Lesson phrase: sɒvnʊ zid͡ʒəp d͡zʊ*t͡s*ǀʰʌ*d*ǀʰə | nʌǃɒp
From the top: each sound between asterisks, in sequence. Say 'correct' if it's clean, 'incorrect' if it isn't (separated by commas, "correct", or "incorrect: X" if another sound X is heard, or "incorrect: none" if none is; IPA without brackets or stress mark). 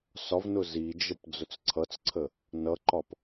correct, incorrect: t͡s